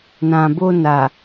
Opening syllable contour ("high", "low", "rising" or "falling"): low